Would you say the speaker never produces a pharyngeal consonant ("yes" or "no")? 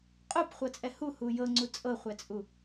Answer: yes